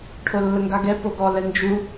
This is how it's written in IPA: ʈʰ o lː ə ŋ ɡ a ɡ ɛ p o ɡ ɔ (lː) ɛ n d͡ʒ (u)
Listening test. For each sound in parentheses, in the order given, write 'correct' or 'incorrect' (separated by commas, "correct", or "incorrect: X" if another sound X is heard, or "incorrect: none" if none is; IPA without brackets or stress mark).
incorrect: l, correct